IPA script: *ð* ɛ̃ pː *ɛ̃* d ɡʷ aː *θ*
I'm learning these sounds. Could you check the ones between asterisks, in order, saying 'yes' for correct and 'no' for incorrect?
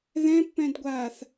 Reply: yes, yes, yes

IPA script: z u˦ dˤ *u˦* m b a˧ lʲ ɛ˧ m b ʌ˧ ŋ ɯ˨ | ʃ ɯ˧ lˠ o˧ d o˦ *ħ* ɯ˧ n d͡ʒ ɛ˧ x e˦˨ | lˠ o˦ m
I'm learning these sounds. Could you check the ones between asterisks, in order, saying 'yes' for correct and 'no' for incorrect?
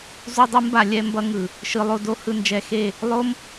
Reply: no, no

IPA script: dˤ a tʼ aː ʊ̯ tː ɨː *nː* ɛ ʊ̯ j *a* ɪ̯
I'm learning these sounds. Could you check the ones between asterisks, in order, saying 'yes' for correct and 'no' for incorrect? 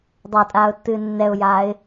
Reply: yes, no

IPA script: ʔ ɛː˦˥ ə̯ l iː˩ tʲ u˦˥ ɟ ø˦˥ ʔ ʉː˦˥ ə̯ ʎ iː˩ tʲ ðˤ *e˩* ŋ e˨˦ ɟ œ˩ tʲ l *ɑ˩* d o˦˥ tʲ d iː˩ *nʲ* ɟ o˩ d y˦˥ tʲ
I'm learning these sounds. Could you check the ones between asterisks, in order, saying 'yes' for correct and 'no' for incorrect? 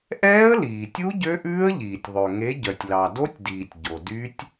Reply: no, yes, no

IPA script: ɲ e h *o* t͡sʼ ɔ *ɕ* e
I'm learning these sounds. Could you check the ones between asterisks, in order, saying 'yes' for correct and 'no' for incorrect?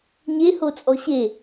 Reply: yes, yes

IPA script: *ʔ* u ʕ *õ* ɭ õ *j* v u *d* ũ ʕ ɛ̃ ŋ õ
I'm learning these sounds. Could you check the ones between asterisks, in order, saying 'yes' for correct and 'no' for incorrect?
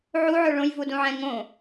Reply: no, no, yes, yes

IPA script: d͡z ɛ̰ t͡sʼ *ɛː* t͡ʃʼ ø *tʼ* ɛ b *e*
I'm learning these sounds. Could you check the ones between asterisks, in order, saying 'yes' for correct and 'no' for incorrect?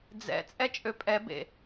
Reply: no, no, no

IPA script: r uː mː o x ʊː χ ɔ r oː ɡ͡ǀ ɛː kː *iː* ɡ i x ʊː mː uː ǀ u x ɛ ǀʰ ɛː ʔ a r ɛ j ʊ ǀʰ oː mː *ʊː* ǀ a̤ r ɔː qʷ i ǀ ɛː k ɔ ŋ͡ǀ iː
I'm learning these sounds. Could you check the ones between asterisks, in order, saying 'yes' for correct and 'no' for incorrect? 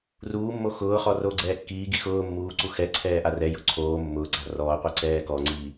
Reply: yes, yes

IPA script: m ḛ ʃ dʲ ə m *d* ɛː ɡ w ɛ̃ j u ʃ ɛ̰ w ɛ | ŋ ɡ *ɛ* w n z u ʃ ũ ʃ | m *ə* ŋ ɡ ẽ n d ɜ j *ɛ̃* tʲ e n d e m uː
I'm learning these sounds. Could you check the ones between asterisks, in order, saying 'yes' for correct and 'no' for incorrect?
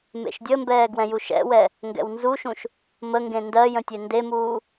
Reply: no, no, yes, no

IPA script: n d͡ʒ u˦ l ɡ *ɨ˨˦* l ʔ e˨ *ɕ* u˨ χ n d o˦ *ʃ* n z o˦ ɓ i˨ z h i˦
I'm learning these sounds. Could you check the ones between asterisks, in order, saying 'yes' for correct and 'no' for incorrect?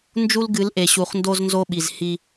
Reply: yes, yes, no

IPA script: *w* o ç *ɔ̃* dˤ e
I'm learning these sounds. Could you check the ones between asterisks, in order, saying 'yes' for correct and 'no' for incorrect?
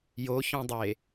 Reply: no, yes

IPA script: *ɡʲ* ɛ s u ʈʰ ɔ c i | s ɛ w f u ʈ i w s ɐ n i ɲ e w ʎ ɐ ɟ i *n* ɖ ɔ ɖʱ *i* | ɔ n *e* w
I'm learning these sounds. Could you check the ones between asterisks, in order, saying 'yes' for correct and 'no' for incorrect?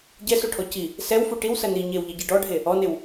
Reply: no, no, no, yes

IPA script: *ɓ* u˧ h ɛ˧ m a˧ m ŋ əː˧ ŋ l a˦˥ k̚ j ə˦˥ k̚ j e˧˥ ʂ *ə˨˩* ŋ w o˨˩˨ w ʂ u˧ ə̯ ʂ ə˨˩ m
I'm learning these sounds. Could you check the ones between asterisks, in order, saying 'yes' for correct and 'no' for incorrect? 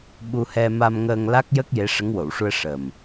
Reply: yes, no

